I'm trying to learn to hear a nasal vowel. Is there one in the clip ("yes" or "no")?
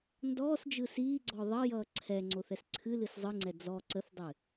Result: no